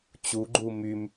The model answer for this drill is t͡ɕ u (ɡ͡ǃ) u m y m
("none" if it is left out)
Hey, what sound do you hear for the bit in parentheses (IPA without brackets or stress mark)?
ɡ͡ǃ